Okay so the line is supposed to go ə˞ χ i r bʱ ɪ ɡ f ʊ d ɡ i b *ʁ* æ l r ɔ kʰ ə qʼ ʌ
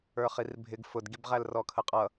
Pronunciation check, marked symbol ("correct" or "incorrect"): correct